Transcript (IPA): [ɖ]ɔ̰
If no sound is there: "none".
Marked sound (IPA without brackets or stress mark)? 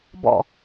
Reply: b